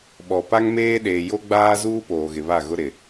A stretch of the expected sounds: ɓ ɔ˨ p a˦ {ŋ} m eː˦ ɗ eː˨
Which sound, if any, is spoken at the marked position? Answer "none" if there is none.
ŋ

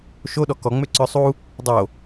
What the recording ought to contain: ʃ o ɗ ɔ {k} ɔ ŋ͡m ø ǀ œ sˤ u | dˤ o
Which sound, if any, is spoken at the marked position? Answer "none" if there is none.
k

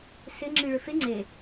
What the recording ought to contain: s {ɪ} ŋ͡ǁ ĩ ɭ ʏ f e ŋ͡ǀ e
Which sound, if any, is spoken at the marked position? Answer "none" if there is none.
ɪ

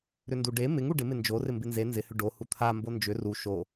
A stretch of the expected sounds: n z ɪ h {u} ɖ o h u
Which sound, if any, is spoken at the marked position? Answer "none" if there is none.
ʏ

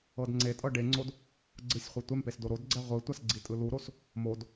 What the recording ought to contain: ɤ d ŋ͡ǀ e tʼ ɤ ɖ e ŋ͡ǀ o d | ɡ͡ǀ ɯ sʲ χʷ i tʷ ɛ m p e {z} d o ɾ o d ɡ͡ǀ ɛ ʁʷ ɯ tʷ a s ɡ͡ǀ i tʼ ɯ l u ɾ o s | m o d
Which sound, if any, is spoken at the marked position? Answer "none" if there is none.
s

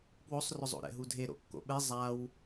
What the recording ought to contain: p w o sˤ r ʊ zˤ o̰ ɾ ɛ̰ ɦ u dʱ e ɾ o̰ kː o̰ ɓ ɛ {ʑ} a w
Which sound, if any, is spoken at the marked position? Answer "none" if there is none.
zˤ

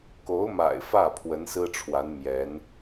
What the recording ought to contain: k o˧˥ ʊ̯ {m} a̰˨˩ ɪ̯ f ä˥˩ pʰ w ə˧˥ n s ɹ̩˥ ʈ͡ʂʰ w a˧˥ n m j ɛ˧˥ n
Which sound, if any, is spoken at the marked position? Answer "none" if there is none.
m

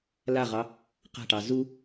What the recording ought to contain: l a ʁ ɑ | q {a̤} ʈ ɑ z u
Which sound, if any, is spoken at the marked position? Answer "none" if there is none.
a̤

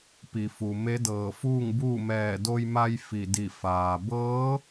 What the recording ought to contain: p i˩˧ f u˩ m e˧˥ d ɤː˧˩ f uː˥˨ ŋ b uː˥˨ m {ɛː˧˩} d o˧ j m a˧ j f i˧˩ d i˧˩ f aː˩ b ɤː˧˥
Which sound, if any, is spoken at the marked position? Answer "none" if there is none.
ɛː˧˩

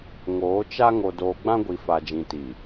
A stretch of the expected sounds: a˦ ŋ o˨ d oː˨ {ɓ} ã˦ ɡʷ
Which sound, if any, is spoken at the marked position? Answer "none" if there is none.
ɡ͡b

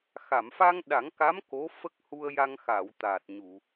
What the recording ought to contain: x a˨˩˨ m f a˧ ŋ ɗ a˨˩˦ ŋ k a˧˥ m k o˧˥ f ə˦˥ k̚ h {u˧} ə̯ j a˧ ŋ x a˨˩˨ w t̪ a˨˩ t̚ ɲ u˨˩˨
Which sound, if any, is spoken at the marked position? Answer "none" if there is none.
u˧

